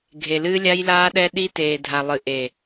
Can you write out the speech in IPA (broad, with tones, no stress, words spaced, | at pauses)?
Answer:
ɡʱe˨lɨː˦ lʲa˦jlaː˦ɗɛ˦ ɗi˦teː˨dʱa˨ lˠɨ˨ʔe˨